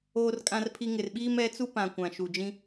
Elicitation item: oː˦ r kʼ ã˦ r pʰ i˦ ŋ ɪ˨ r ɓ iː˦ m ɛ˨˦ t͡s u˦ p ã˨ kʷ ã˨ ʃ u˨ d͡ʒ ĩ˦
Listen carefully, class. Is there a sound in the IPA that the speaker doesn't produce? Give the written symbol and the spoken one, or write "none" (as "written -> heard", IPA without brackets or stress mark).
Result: none